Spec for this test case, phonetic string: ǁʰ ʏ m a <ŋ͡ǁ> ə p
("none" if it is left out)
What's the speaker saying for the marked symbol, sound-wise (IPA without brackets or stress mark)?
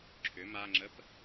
ŋ͡ǁ